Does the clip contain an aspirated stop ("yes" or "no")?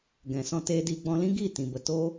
no